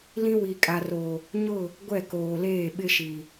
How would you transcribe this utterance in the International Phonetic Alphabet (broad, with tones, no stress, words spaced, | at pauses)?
lĩ˦wi˨kʼa˨ro˨ | ɲʊ˦˨ | ɡʷɛ˦˨koː˨leː˦˨ ɓɪ˦ʃi˨